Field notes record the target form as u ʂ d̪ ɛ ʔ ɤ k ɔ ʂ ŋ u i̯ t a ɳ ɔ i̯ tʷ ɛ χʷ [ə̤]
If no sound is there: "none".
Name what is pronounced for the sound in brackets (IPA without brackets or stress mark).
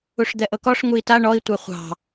ɑ̤